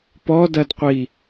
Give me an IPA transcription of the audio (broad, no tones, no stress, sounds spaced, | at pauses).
p ɔ d ɐ d qʷ i